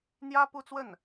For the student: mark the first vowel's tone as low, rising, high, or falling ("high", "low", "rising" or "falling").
high